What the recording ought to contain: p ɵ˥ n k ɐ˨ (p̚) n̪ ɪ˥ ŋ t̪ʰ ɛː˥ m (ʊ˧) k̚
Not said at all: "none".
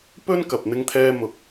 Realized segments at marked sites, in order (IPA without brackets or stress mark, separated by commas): p̚, ʊ˧